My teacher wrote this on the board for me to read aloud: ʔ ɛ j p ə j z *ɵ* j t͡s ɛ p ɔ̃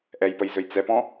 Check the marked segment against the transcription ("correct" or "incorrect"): correct